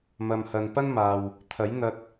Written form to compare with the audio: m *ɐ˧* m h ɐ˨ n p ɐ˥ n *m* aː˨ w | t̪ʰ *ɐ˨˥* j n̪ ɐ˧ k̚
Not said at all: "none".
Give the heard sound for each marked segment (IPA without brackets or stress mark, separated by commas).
ɐ˨, m, ɐ˨˥